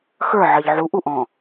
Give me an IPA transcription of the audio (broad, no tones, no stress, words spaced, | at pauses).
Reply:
xə˞ ʕɜʎʕu ʔuʔɔ̃